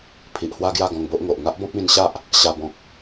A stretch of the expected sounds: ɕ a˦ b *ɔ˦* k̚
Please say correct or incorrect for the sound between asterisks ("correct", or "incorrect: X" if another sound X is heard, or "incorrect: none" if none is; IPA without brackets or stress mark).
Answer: incorrect: ɔ̃˦